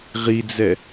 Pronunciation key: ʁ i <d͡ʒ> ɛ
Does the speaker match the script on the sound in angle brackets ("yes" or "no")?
no